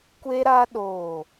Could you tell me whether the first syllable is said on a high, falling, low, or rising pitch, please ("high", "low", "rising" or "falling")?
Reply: high